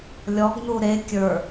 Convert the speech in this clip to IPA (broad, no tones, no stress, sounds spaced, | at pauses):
lʲ ɔ ɡ n u ɾ e kʲ ə˞